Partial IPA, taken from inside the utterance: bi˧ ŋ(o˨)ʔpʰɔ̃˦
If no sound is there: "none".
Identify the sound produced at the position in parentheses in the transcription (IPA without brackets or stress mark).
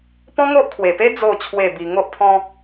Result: o˦